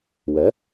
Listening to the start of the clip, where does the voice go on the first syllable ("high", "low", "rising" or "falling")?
rising